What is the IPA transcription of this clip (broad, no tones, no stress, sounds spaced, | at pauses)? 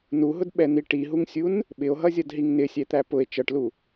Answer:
n u ɦ ʊ d ɓ ɛ n̪ i ʈ i ɦ u ŋ sʲ u n | ɓ ɪ o̯ ɦ ʌ zʲ ʌ d ɦ i ŋ n ɪ sʲ ɛ t̪ æ p ʊ e̯ t͡ʃ ʌ ʈ l u